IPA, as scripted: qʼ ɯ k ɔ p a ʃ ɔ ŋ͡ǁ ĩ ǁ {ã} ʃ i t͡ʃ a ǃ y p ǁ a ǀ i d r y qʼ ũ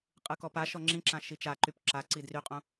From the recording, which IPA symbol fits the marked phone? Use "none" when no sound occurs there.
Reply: ã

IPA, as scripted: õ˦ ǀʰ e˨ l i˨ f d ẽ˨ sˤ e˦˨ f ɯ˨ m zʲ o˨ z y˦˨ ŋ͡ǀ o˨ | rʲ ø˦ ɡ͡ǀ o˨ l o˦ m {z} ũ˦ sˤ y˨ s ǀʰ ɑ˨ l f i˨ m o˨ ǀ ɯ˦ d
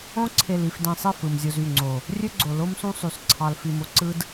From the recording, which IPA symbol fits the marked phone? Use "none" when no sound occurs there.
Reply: s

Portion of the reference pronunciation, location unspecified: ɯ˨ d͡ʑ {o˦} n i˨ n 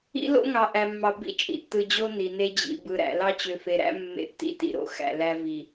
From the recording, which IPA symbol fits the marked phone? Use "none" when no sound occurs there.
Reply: o˦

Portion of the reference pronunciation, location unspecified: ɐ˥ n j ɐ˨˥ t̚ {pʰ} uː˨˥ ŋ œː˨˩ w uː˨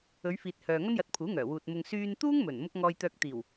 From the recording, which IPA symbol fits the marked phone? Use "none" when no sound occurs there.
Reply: pʰ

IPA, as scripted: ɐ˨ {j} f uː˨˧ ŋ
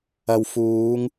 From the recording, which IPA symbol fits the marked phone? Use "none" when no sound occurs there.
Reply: w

